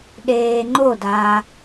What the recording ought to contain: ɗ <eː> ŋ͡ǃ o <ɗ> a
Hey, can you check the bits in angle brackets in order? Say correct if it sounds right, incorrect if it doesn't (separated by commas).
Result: correct, incorrect